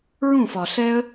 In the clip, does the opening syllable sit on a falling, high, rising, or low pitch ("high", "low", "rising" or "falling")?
falling